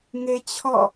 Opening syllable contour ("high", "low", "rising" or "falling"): high